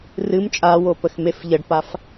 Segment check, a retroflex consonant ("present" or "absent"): present